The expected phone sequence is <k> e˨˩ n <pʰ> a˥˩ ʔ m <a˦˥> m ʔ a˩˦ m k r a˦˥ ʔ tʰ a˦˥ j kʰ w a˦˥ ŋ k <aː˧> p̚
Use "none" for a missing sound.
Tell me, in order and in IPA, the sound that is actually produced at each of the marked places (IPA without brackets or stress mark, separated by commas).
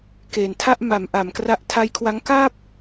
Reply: k, tʰ, a˩˦, aː˥˩